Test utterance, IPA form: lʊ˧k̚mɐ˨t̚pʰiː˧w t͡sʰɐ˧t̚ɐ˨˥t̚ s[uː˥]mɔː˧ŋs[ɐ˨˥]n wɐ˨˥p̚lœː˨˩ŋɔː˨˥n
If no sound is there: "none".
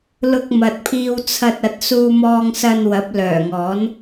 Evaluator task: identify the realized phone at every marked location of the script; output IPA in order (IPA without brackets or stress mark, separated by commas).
uː˧, ɐ˧